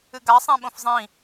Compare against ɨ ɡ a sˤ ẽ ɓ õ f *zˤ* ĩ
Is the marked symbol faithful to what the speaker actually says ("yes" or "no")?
yes